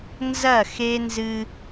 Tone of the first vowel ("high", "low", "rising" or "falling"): falling